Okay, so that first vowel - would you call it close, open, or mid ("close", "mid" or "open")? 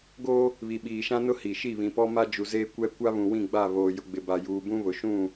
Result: mid